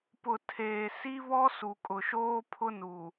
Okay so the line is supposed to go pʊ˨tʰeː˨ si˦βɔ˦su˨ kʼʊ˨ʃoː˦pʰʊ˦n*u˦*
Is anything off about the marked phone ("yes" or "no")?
yes